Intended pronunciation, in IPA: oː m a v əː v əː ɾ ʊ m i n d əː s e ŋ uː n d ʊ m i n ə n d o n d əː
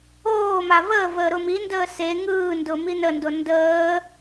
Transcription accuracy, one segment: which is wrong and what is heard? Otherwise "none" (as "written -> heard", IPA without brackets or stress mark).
uː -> ɯː